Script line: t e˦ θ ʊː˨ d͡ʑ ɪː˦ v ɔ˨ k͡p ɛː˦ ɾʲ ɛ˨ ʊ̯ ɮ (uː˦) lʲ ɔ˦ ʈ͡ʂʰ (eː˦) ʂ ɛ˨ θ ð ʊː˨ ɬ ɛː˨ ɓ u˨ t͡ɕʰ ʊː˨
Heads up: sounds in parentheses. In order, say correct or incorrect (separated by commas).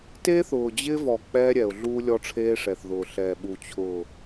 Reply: correct, correct